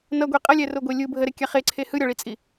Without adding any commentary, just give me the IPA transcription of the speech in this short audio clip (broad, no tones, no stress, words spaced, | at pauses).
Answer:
nʌɡʷe qʼʌlʲɛroɡʷe lʲɯ bʱəɾekʲa χeǀʰe hɯɾʲɒɭit͡sʼi